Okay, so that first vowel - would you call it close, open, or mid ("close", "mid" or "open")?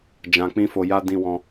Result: open